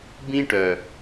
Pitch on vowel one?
high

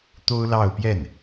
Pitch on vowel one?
high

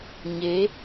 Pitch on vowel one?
rising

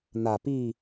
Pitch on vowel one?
low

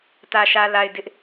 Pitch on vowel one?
low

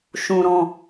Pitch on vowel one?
high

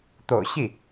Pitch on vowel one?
low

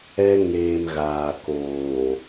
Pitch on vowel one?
high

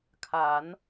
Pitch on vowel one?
rising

